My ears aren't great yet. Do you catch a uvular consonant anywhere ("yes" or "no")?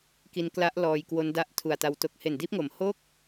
no